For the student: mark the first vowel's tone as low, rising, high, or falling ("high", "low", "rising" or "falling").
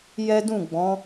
high